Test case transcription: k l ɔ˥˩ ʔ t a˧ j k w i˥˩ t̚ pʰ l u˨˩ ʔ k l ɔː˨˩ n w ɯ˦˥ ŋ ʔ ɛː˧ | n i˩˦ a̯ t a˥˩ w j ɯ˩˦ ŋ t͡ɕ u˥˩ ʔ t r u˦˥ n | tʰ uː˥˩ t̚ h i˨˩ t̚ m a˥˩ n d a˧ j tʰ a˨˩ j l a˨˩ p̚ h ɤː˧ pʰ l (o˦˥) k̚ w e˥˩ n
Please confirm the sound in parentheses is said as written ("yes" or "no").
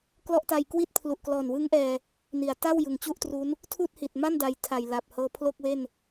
no